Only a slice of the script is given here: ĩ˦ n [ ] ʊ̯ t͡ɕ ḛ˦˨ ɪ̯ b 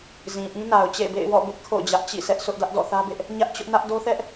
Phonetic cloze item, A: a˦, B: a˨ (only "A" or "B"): B